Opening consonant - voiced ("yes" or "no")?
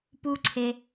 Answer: no